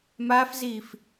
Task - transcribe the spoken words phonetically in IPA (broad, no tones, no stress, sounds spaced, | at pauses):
m aː f z iː f